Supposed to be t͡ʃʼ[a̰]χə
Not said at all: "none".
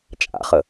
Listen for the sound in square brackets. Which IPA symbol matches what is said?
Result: a̰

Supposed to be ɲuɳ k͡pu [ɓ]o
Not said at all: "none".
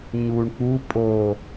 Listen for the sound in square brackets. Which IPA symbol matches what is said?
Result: pʼ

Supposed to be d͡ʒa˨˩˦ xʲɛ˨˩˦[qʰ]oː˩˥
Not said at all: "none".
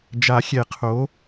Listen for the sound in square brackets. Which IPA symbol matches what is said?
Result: qʰ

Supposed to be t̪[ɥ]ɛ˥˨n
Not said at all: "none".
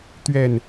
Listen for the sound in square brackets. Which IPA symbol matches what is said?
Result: ɥ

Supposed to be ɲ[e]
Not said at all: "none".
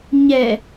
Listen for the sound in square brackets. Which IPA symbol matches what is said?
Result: ɛ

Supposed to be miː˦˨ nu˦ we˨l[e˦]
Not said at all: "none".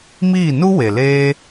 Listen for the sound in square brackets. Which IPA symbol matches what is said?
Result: eː˦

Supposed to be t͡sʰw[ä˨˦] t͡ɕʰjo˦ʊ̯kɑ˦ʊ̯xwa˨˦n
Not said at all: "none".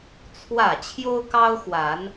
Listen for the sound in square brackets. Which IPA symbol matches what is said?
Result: ä˥˨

